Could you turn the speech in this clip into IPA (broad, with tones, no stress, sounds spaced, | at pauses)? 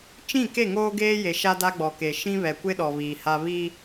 t͡ʃ ĩ˦˨ k e˦˨ ŋ oː˦ ɡ eː˦ j e˨ ʃ a˦ d a˦ ɡ͡b ɔ˨ k e˨ ʃ ĩ˦ β ɛ˨ kʷ ɪ˦ ɗ ɔ˨ β iː˨ h a˦ β i˦